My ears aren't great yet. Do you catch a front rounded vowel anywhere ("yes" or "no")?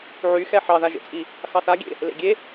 yes